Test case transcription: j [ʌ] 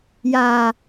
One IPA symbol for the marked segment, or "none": a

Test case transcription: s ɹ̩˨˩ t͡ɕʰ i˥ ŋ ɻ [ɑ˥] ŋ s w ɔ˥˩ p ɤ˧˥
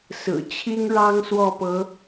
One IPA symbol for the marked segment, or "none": ɑ˥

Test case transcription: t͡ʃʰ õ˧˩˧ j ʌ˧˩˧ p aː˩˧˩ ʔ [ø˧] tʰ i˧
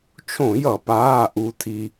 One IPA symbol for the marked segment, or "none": u˧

